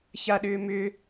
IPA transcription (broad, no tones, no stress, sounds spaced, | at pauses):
ç a ɗ ʏː m ʏ